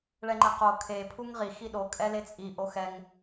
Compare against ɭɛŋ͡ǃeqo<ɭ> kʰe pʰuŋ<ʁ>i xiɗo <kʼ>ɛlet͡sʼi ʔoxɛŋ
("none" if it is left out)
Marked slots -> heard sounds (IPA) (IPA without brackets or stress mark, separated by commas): none, ʁ, kʼ